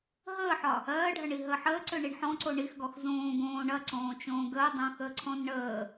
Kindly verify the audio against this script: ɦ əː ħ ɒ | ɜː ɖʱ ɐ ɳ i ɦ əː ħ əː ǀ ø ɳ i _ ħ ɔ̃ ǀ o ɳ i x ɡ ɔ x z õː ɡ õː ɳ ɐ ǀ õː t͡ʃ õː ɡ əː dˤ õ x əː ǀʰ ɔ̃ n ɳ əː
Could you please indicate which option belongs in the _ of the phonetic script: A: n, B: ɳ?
B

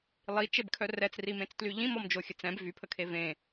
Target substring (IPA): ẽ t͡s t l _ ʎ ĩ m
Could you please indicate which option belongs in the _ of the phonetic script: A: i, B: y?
B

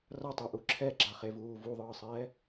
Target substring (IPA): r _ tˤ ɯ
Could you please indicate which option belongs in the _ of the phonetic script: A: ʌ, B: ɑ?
A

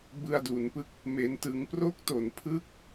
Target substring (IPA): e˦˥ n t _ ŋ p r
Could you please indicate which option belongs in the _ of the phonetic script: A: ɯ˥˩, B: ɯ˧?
B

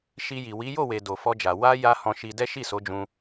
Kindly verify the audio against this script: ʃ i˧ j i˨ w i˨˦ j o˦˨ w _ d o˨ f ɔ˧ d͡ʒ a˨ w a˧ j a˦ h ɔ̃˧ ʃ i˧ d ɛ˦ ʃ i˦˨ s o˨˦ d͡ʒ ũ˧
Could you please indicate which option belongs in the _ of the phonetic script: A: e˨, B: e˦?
A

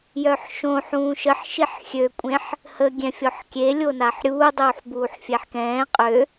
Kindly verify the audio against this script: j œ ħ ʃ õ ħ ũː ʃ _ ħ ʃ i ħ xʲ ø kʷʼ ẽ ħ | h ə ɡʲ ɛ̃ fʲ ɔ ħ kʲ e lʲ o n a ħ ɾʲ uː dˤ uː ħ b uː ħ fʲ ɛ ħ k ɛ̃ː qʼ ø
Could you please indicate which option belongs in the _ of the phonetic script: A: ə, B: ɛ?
A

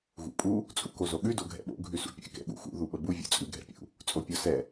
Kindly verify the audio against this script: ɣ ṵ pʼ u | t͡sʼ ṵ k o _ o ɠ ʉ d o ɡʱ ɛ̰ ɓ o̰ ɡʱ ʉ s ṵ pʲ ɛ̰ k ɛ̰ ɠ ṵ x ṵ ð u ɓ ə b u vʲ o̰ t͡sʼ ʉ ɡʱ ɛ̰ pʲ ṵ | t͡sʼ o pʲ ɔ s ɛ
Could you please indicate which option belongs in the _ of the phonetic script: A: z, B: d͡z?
A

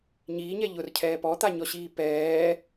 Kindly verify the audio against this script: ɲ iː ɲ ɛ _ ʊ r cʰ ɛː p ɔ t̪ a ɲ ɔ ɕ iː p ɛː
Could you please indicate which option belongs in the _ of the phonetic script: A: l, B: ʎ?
B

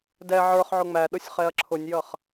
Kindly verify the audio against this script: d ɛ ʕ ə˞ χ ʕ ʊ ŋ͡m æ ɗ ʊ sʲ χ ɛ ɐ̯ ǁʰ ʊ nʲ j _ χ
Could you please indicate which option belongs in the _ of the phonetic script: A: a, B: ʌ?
B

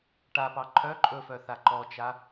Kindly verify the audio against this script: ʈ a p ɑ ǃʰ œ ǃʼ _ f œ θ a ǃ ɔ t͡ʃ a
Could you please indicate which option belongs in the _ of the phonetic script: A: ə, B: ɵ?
B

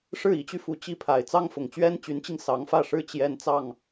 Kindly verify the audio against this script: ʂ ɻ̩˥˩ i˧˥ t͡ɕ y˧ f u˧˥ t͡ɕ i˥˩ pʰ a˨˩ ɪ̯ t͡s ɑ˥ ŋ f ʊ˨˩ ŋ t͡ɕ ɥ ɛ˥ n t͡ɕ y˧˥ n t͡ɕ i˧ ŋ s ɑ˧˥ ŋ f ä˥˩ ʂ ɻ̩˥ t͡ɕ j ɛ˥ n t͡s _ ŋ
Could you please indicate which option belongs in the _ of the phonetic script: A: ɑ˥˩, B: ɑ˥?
A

